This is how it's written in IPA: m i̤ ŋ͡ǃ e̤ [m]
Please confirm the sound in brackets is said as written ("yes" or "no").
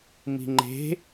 no